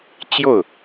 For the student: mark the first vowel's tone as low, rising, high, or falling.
falling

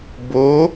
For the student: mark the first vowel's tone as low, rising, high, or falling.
rising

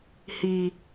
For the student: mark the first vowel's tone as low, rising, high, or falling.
low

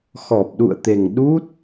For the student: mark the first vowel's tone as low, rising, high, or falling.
low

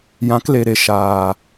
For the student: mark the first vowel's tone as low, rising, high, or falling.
rising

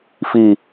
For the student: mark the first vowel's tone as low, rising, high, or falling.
low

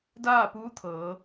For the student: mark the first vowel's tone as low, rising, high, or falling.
falling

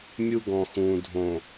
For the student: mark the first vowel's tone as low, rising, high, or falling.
high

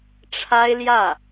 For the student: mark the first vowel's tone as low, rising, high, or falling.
high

